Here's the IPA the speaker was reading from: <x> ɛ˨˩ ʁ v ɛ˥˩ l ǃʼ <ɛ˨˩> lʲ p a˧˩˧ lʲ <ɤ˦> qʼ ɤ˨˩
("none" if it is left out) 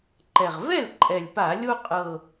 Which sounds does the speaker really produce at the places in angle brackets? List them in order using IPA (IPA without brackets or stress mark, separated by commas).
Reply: ǃ, ɛ˨˩, o˦